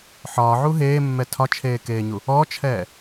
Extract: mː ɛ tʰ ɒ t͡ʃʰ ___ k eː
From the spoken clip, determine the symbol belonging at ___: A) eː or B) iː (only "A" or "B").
A